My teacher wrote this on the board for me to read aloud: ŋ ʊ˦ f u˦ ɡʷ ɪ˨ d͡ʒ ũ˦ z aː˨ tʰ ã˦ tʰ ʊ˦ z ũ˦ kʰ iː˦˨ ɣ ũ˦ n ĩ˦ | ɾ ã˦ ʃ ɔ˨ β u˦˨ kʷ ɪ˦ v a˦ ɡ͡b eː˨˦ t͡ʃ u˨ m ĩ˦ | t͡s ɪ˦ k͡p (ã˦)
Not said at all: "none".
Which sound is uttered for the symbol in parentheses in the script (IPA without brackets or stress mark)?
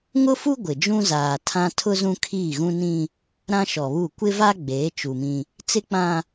ã˦